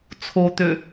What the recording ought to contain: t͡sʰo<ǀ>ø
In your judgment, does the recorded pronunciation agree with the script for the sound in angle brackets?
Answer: no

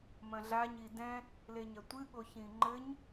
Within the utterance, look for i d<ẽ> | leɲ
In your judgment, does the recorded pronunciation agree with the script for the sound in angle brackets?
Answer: no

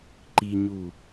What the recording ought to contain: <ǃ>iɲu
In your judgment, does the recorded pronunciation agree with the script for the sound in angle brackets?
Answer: yes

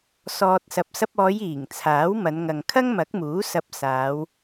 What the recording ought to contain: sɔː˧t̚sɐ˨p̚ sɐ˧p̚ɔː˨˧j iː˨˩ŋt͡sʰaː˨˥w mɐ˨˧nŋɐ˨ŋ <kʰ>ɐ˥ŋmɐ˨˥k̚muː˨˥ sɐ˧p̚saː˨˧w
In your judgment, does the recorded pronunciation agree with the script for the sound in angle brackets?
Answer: yes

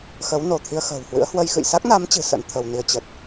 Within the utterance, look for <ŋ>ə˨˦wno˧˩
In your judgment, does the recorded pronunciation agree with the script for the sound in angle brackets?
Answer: no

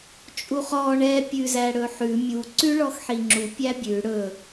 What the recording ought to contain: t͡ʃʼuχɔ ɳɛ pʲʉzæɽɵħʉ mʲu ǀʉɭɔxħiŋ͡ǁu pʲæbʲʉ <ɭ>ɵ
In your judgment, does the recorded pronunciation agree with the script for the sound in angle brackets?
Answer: no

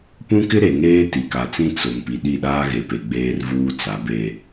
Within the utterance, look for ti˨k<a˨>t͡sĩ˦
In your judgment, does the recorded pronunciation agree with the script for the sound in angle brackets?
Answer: yes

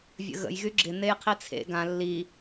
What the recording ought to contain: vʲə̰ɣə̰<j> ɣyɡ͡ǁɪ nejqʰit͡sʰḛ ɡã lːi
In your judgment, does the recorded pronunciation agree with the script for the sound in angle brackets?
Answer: yes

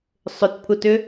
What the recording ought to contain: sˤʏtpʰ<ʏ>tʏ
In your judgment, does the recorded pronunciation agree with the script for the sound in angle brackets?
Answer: no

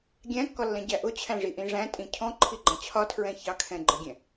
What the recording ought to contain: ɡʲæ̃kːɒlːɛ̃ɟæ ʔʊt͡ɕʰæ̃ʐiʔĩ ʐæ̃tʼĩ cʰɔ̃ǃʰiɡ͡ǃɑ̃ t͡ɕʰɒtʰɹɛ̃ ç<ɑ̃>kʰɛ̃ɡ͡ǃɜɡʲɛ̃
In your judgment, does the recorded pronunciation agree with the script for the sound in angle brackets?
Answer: no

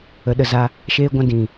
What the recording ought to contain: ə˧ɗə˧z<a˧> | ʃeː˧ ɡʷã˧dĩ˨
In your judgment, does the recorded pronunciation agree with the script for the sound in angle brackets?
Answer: no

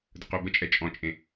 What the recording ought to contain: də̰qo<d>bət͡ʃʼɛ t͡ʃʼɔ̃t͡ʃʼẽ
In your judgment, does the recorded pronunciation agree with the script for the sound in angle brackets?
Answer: no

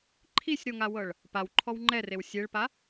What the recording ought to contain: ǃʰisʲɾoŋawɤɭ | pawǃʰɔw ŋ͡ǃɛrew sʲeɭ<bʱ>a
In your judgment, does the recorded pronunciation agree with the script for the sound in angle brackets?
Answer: no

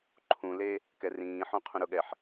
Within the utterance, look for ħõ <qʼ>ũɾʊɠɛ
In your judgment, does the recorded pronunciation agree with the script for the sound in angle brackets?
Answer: no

